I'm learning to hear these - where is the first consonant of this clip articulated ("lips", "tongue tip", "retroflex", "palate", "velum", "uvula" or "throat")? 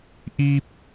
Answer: throat